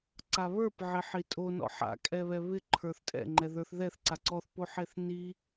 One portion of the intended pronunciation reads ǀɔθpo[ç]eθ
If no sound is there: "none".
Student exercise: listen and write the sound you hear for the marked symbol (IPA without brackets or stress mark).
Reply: ħ